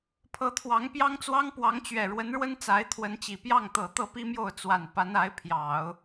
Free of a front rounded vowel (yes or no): yes